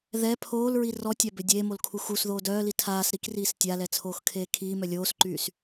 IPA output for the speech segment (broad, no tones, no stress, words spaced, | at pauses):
ðɛ pʰoːlɹi rɔtʲa bødʲeːmol kʰuxusðoːd œːli tʰaːs ɾikriːs tʲalɛ t͡sʰoːxkʰeːkʰiːmœ lʲoːsǃyːs